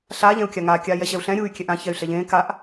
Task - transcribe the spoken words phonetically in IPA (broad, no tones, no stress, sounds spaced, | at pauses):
ɬ aː ʎ ɛ̃ u̯ kʲ a ŋ aː kʲ aː j ɛ ɕ ɛ u̯ ɬ ɛ̃ ɾʲ u y̯ kʲ ɛ ʔ ã ç ɛ y̯ ɬ ɛ ʎ ẽː k a ʔ